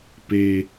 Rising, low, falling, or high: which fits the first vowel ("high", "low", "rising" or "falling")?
low